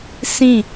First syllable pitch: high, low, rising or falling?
falling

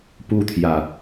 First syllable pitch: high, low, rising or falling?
high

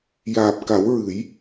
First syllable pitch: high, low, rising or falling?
low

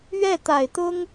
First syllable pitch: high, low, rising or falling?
falling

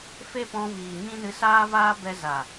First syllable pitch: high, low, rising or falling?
high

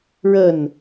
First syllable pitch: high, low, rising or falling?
falling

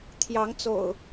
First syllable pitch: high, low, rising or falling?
rising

